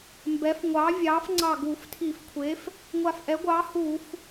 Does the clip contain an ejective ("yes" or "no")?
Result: no